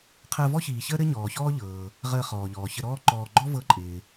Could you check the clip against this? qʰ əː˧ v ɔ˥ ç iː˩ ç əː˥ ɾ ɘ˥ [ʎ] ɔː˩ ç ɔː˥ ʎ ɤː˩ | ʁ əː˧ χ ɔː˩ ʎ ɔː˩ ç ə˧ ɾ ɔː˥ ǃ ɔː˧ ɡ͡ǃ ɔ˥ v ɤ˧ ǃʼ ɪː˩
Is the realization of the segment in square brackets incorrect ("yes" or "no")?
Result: yes